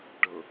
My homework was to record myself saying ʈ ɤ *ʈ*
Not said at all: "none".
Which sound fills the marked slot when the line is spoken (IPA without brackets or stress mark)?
none